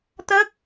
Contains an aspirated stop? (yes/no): no